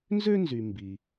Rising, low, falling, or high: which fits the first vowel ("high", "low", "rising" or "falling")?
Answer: high